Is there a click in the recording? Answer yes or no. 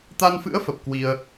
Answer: no